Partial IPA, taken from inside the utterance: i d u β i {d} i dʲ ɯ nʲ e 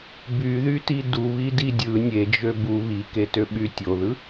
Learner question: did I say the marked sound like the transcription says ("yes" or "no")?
yes